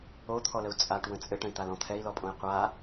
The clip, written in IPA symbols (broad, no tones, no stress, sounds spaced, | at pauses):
o t̪ʰ ɔ l ə u̯ t͡sʼ a ʈ w ə̃ t͡sʼ ɘ ʈ ə̃ i̯ t̪ a l ɔ̃ t̪ʰ ɛ i̯ l ɔ pʼ õ i̯ qʷ a